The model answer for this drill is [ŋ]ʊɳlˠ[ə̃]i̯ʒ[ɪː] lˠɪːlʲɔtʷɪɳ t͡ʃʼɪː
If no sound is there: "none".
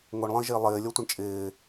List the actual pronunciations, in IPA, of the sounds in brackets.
ŋ, ə̃, ɪː

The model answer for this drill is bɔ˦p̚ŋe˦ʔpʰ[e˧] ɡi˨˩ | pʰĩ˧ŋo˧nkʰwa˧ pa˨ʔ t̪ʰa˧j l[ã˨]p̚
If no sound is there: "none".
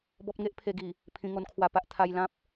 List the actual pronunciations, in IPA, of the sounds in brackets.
e˧, ã˦

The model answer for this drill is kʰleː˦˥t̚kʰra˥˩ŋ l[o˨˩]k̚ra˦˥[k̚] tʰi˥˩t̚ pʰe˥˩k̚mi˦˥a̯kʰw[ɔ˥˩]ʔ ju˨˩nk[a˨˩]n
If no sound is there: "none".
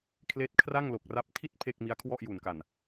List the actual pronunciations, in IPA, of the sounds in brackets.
o˨˩, p̚, ɔ˥˩, a˨˩

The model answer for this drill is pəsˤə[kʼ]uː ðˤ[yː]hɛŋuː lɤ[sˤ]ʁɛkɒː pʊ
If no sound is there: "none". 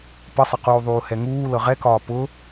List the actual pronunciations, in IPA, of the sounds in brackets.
q, uː, none

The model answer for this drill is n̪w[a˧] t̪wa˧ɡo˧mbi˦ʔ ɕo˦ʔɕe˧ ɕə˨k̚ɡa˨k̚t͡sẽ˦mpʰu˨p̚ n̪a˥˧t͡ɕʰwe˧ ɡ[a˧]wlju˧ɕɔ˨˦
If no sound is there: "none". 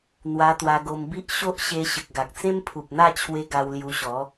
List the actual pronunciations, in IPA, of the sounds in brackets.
a˧, a˧

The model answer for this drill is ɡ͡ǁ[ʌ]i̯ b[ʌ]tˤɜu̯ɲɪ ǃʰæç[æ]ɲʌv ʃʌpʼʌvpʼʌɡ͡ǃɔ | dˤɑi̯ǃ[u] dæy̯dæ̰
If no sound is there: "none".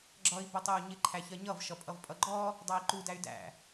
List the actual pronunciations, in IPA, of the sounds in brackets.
ʌ, ʌ, ɜ, u

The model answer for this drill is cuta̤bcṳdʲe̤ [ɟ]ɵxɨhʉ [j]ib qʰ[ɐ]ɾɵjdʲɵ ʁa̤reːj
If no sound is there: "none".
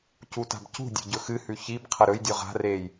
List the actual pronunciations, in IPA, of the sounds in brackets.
ɟ, ç, ɐ

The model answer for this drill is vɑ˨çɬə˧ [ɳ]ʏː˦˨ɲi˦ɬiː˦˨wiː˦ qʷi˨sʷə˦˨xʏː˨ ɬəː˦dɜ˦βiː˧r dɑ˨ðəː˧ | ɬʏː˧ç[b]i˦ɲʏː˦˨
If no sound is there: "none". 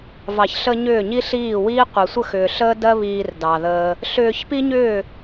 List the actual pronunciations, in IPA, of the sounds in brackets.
ɲ, p

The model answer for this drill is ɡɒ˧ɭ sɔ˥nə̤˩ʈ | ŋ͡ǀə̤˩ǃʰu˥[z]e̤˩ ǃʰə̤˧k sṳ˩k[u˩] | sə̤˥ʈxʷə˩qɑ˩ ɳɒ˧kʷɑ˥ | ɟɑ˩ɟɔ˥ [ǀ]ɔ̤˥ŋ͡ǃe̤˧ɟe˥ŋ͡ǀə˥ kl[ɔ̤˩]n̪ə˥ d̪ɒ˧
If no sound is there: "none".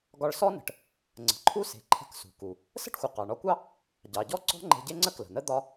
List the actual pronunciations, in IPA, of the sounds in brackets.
s, u˩, ǀ, ə̤˩

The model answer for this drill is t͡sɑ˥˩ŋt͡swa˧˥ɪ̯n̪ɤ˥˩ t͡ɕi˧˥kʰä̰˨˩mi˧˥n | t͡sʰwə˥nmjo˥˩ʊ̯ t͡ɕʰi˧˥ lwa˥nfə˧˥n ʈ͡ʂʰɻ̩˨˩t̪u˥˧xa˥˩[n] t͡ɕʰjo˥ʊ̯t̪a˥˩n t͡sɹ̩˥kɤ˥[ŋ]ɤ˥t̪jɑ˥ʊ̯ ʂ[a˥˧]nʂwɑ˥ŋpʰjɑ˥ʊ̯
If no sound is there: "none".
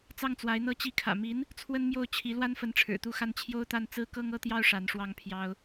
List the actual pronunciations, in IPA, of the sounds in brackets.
n, ŋ, a˧˥

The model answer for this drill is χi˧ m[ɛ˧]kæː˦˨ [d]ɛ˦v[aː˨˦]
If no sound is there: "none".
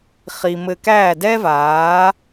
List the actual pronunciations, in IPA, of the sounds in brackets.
ɘ˧, d, aː˨˦

